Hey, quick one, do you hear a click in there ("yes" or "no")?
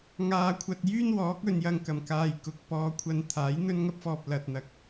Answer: no